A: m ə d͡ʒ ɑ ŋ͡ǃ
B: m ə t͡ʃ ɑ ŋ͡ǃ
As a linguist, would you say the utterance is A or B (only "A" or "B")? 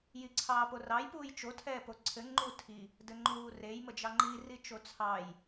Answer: A